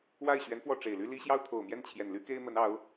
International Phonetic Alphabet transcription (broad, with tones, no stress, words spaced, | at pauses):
wa˥˩ɪ̯ɕɥɛ˧˥nfwɔ˥˩ ʈ͡ʂe˨˩ɪ̯ly˥ li˥ ɕjɑ˥ʊ̯t̪ʰo˨˩ʊ̯mjɛ˥˩n t͡ɕʰjɛ˨˩nly˥ke˥ɪ̯mə˧˥n ɑ˧˥ʊ̯